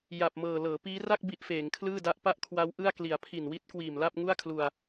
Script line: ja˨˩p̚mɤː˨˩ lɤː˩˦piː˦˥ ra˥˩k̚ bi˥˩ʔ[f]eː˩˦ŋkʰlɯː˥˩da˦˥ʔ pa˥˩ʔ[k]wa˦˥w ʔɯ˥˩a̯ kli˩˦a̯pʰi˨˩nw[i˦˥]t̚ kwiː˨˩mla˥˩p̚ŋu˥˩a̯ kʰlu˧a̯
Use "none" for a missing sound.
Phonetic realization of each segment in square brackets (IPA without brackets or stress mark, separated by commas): f, kʰ, i˥˩